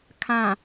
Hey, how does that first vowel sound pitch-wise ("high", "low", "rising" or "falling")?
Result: low